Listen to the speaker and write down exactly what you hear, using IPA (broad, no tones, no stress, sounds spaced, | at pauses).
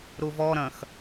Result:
ɾ u v ɔ ɾ ɐ̃ x